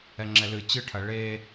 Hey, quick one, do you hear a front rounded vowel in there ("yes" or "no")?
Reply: no